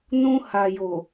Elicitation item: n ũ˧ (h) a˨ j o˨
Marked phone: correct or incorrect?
correct